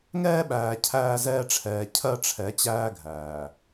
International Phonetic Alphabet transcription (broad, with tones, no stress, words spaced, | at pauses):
ŋɛː˦ɓæː˨ cʰæː˦zɛː˦ʈ͡ʂʰɛː˨ cʰɜ˦ʈ͡ʂʰɛ˨˦t͡ɕæː˦ ɡʱæː˨